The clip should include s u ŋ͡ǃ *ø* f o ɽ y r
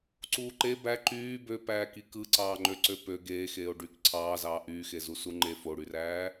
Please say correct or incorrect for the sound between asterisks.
incorrect